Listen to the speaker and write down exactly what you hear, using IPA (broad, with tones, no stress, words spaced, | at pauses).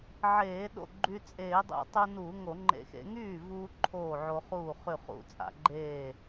ʕeː˧˩˧ ɗo̰˥˩ɡ͡ǃy˧ t͡sʼeː˧˩˧dˤṵ˧˩˧ tˤu˧ nuː˧˩˧ŋo˧˩˧ ŋ͡ǃḛ˧˩˧xḛ˧˩˧ ŋyː˥˩vuː˧ ǃʰoː˥˩ʕo˧χuː˥˩ χy˥˩χṵ˧˩˧t͡sʼa̰˧˩˧ ɡ͡ǃeː˥˩